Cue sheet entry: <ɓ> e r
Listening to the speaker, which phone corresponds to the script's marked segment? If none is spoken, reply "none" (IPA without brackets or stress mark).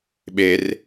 ɓ